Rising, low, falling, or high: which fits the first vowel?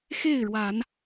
falling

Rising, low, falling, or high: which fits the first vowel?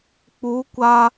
rising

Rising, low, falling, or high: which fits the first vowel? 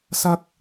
high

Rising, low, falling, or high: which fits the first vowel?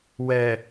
low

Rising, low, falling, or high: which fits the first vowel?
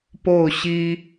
falling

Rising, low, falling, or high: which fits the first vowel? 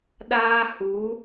high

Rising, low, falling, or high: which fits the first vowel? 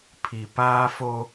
low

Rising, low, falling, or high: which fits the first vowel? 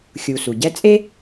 low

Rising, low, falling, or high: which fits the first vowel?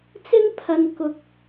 high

